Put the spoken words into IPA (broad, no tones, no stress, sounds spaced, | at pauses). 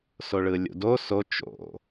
s o ɭ ɯ lʲ ṵ d o s o t͡ʃ o̰